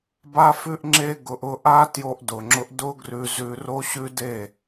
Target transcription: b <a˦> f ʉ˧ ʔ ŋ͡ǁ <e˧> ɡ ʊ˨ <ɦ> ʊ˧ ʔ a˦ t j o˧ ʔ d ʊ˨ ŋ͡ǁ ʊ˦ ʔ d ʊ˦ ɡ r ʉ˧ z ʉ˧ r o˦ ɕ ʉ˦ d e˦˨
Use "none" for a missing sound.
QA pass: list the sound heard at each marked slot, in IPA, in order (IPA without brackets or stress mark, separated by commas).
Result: a˧, e˧, ʔ